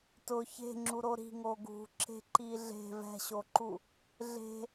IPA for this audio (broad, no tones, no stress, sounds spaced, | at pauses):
t ʊ ç e̤ ŋ͡ǁ u ɾ o ɾ i̤ ŋ o ɡ ṳ ǁ e̤ ǃ i ɮ e̤ v ɛ̤ ɕ o ǃ u | ɮ e̤